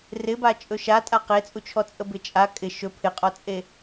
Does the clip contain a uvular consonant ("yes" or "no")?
yes